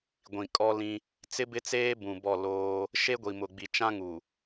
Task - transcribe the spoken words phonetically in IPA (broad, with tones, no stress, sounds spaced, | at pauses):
ɡʷ ĩ˨ kʼ ɔ˦ l ĩ˦ | t͡s ɪ˦ b ɪ˦ t͡s eː˦ b ũ˨ b ɔ˦˨ l oː˦ | ʃ e˦ ɡʷ i˨ m ʊ˨ ɡ͡b i˨ t͡ʃ ã˦ ŋ u˨